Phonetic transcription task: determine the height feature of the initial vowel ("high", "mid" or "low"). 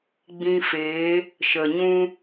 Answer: high